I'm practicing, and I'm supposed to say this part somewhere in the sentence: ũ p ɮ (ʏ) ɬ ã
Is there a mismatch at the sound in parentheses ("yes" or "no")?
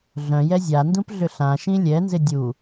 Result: no